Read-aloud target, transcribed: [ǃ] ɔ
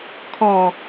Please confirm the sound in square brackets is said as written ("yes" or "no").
no